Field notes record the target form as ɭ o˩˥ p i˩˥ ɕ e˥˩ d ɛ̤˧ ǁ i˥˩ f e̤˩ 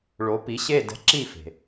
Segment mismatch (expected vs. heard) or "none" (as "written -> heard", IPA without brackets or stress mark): none